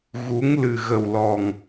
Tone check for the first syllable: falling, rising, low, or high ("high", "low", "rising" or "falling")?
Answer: rising